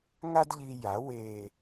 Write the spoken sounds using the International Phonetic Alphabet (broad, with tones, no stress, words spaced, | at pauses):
ŋa˥dʎi˧ ja˩˥ we˨˩